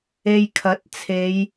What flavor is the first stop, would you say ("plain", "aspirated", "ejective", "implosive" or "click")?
aspirated